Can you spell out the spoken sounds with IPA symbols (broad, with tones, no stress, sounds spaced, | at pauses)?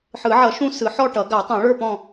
ħ ɯ˨˩˦ ʕ ʌ˨˩˦ ʃ ũ˦˨ s ɯ˨˩˦ ħ ɔ˦˨ ʈ ʌ˨˩˦ ɡ a˨˩˦ tˤ ũ˨˩˦ ɭ ə˞˦˨ p ɔ̃˦˨